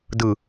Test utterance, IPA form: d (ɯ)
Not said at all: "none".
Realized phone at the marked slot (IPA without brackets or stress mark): ɯ